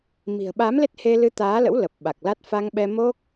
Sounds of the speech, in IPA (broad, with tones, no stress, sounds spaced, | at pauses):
m i̤˨˩ ə̯ ɓ a˨˦ m l e˦˥ t̚ h e˧ l ɨ˧ t̪ aː˨˦ l ə̰˧˥ w l ə˨˩ p̚ ɓ a˨˩ k̚ l a˦˥ t̚ f a˧ ŋ ɓ ɛ˧ m o˦˥ k̚